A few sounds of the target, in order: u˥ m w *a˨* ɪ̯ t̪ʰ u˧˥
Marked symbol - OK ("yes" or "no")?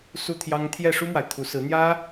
yes